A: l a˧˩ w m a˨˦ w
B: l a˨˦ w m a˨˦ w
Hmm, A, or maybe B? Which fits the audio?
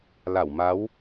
A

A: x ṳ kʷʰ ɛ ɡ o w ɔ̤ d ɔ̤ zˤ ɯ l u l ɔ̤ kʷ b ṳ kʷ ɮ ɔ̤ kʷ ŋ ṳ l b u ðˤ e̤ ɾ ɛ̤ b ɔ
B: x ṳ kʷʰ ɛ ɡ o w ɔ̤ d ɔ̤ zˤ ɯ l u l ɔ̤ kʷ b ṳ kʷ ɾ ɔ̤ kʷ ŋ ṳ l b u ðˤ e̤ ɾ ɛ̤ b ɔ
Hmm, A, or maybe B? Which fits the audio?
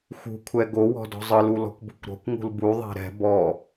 B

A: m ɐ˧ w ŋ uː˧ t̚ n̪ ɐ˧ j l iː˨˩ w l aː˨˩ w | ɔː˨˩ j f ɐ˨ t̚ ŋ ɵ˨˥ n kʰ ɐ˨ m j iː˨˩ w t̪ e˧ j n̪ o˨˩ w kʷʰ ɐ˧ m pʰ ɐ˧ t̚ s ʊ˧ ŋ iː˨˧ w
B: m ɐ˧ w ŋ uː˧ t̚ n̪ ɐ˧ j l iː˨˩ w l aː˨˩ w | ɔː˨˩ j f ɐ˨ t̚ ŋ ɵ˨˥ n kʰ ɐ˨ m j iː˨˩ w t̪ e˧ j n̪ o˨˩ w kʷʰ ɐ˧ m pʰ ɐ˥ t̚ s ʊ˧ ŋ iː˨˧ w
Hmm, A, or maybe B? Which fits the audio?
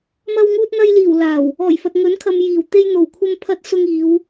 A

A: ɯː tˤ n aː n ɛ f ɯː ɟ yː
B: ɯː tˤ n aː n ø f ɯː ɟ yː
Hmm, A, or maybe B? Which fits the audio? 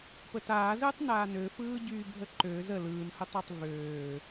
B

